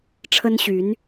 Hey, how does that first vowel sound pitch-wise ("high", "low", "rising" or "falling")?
high